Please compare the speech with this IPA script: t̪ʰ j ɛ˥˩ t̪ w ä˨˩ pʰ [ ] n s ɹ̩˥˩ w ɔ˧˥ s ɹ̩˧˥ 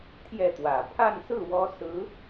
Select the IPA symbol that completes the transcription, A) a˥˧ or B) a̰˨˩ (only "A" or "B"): A